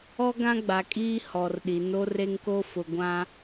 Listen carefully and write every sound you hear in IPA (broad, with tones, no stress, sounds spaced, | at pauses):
ɔ˦ ɡ ã˦ ɡ͡b a˨ kʼ iː˦ h ɔ˨ r ɗ i˨ n o˦ r e˦ ŋ k o˦ f ʊ˨ ɡʷ ã˦